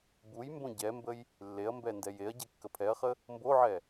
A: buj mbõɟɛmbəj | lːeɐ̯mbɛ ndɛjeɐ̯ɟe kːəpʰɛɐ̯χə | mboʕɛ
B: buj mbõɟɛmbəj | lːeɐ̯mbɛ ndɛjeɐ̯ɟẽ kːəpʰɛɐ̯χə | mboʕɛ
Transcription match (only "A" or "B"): A